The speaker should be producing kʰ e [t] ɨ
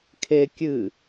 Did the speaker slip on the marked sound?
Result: yes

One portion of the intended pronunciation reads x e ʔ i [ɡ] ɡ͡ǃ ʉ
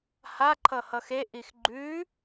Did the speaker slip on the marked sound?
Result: yes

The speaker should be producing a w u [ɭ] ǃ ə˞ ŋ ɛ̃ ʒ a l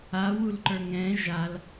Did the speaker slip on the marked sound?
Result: yes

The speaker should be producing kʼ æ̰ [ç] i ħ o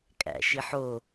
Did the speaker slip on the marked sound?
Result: yes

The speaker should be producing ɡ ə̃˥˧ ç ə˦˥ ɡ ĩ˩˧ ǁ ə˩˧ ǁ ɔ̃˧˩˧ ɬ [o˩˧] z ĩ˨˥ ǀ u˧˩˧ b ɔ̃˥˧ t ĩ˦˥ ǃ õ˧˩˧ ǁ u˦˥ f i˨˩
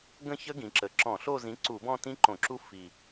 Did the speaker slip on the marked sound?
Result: yes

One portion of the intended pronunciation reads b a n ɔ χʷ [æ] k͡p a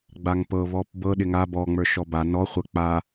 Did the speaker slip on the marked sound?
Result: yes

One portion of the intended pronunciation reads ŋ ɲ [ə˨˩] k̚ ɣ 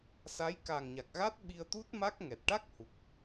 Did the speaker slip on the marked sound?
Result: yes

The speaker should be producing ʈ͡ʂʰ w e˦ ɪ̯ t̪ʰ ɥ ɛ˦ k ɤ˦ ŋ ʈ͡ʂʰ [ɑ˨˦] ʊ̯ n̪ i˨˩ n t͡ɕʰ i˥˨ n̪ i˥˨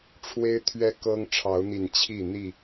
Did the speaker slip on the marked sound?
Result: no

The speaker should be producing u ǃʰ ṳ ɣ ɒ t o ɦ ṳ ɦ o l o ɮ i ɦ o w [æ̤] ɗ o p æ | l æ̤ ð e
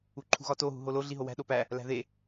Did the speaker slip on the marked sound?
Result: no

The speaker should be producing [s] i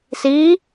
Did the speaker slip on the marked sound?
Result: no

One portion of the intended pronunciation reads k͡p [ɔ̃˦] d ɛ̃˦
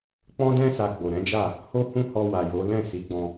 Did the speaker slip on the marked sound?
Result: no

